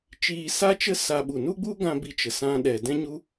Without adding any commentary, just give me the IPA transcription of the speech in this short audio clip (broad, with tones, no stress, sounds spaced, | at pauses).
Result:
t͡ʃ iː˧ s a˦ t͡ʃ ə˦ s a˧ ɓ u˨ n u˦ ɡ͡b u˦ ɡ ã˧ b i˧ t͡ʃ ə˨ s ã˧ ɗ ɛ˨ d ɛ̃˦ ɲ u˦